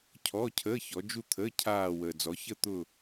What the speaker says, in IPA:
cʰ ɔ˧˥˧ cʰ əː˧˥˧ ç ɔ˨˦ d͡ʒ u˥˧ t̪ʰ əː˧˥˧ cʰ aː˥˧ w əː˨ d͡z ɔ˨˦ ç ə˥˧ t̪ ʊ˥˧

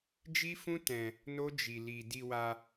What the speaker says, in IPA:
d͡ʒ i˦ f ũ˦ t ɛ̃˧ | n o˦ d͡ʒ i˧ l i˧ d i˧ w a˧

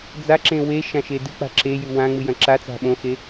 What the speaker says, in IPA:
d͡z a ǁ ẽ w e ʃ ã ʃ e d ɨ k͡p a̤ ǁ e j ʉ w ã ŋ͡m ɨ j ɐ̃ ǁ a t͡s a̤ ɓ õ x e

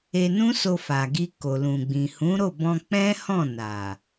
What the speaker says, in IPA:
e˧ n ũ˦ s o˧ f a˨ ɡ i˧ k o˨ l ũ˨ ɡ͡b ĩ˨ h ũ˨˦ ɾ o˦˨ b ɔ̃˧ k͡p ɛ̃˦ h ɔ̃˦˨ n a˨

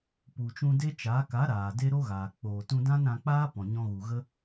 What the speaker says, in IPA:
p u˨ t͡ʃ ũ˧ d e˦ t͡ʃ aː˨˦ k a˨˦ ɾ aː˨ d e˦ ɾ o˦ ɣ aː˨ k͡p oː˨ t ũ˧ d ã˦ n ɾ ã˧ k͡p aː˦ p ɔ̃˨ ɲ ɔ̃˧ ɣ u˨ ɣ ə˦

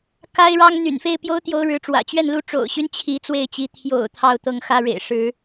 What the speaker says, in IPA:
k a˥ ɪ̯ ɻ ɑ˥ ŋ n̪ y̰˨˩ n f e˥˩ ɪ̯ p j o˥ ʊ̯ t̪ j o˧˥ ʊ̯ ɻ ɻ̩˧˥ ʈ͡ʂ w ä̰˨˩ t͡ɕ ɥ ɛ˥˩ n l u˥ ʈ͡ʂ o̰˨˩ ʊ̯ ɕ y˧˥ n t͡ɕʰ i˧˥ t͡s w e˥˩ ɪ̯ t͡ɕ i˧˥ t̪ʰ j o̰˨˩ ʊ̯ t̪ʰ ɑ˥˧ ʊ̯ t̪ ɤ˥˩ ŋ x ä˥ ɻ ḛ˨˩ ɪ̯ ʂ ɻ̩˧˥

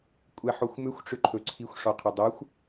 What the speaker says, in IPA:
kʷʼ ɛ ħ o xʷ m ʏ xʷ ʈ͡ʂ ʏ ǃʰ ɵ ǀʰ i xʷ ʂ ɔ qʰ ɵ dˤ o xʷ

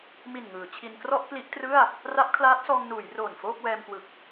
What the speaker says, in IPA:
m i˨˩ n ŋ ɯː˩˦ t͡ɕʰ i˧ n k r ɔ˥˩ ʔ k l i˦˥ ʔ t r ɯ˥˩ a̯ | r a˦˥ p̚ kʰ l aː˦˥ t̚ s ɔː˧ ŋ n uː˩˦ j r oː˨˩ n f oː˥˩ k̚ w ɛː˧ m k w ɯ˨˩ k̚

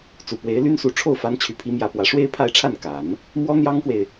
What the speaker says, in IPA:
t͡s u˨˩ p w e˧˥ ɪ̯ l y˥ n s u˧˥ ʈ͡ʂʰ o˥˩ ʊ̯ f a˧˥ n t͡ɕʰ y˨˩ pʰ i˧˥ m j ä˧˥ p w ä˨˩ ʂ w e˥ ɪ̯ pʰ a˥˧ ɪ̯ ʈ͡ʂʰ a˥˩ n k a˨˩˦ n | m w ɔ˥ n̪ j ɑ˥ ŋ k w e˨ ɪ̯

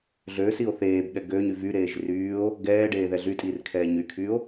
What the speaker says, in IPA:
ɮ øː s i o̯ θ eː b ɠ ɛ ɡ øː ɲ y v y ɾ eː ʒ r yː o̯ | ɡ ɛː ɖ eː ð ɛ ɮ y tʼ iː r kʰ ɛː ɲ y kʰ yː o̯

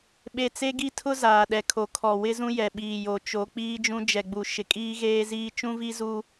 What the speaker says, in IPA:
ɓ e˦˨ t͡s e˦ ɡ i˦ tʰ ʊ˦ z aː˨ ɗ ɛ˨ kʰ o˨ kʰ ɔ˨ w ɪ˦ z ũ˦ j ɛ˨ ɓ iː˨ j o˨ t͡ʃ o˨˦ k͡p iː˦ d͡ʒ ũ˦ d͡ʒ ɛ˨ ɡ͡b u˨ ʃ ɪ˨ kʼ iː˦ ɣ eː˦ z iː˦ t͡ʃ ũ˦ v i˦ z u˦

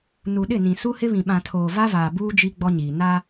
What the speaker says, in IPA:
n u˨ ɗ ɪ˦˨ n ĩ˨ s u˦ h ɪ˦ β ĩ˨ ɓ ã˨ tʰ oː˨ v a˦ v aː˨ b uː˦ d͡ʒ i˦ ɡ͡b ɔ˦ ɲ iː˨ n a˦

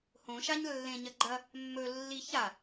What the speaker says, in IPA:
h õ ʃ a ɲ lː ẽ ɲ ɐ ɡ͡ǃ ɐ | mː ɵ lː i ç a

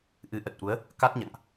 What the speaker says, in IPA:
ʔ ɨ˨˦ ʔ ə˨˩ t̚ ʔ u˨˦ ə̯ | k a˦˥ t̚ ɲ a̰˧˨ ŋ ʔ

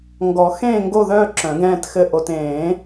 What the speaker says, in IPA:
ŋ ɡ ɔ˨˩˦ x ẽː˥˧ ŋ ɡ o˥˧ ð œː˥˧ ǁ œ̃˨˩˦ ɡ ɛ̃ː˥˧ t x ɘ˥˧ ʔ o˨ t ẽː˨˩˦

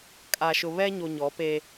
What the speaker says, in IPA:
kʼ a˨ ʃ ʊ˨ β ɛ˦ ɲ o˨ ɲ ɔ˨˦ p e˦

